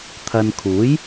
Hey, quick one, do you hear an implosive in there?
no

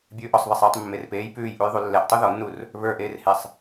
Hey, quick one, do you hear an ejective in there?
no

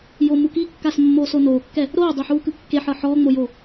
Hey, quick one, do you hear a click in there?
no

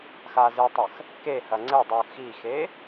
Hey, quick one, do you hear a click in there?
yes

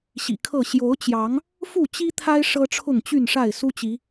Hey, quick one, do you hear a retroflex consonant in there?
yes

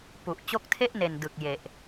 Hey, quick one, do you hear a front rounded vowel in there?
no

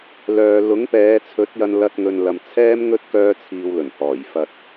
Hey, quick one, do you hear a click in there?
no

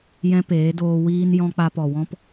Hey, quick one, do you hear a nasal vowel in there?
yes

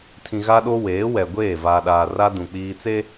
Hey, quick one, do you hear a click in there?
no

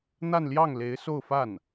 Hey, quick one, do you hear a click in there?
no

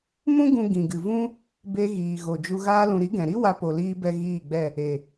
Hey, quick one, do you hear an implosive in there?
no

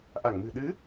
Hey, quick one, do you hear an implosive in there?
yes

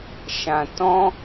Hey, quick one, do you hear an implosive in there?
no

